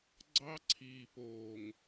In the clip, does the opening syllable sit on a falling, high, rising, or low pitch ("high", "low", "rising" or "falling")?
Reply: high